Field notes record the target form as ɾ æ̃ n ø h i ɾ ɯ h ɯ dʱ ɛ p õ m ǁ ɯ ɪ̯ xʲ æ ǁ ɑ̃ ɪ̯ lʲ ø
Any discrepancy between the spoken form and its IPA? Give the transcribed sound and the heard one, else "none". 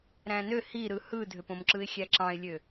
ɛ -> ø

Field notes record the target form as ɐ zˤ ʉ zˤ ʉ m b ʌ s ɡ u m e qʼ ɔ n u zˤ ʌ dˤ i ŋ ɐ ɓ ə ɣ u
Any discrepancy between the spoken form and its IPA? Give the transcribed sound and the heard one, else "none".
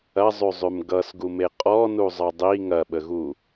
b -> ɡ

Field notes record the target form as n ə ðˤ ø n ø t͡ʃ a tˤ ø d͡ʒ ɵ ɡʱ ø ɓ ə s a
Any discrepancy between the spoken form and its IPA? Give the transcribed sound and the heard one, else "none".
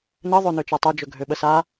none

